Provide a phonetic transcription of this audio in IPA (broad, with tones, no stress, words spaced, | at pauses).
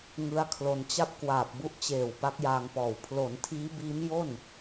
ŋɯ˦˥a̯kʰlo˧nt͡ɕa˥˩p̚ kwaː˨˩p̚bu˦˥ʔt͡ɕeː˨˩w pa˦˥k̚jaː˧ŋpɔː˨˩w pʰlo˩˦n tʰiː˦˥biː˦˥m jo˥˩n